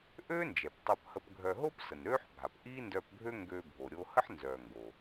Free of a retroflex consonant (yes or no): yes